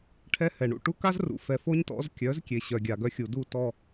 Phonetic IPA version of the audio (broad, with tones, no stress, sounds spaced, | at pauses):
ʈʰ ɛ˦ h ɛ˨ ɳ ṵ˨ ʈ u˦ k a˦ z r ṵ˨ f ɛ˨ f o˦ ɲ t ɔ̰˨˦ z kʲ œ˨˦ z kʲ e˨ ɕ œ˨ ɡʲ a˨ ɡ œ˦ xʲ u˨ d u˦˨ t ɔ˨